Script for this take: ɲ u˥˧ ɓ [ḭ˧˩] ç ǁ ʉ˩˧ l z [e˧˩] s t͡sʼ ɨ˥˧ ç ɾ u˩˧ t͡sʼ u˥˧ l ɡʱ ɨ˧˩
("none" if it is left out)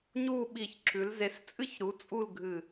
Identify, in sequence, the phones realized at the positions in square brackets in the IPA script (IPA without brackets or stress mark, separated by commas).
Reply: i˧˩, e˩˧